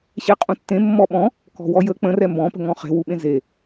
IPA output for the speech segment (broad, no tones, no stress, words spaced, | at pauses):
ɕɛqʼũtːẽ mːɔɓɔ̃ | kɔ̤wɔjə k͡pə̃ rɛmbɔ̃ pə̤ŋɔ̃χɛ̤ wuɓẽze